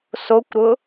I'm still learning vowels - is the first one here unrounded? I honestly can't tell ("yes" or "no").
no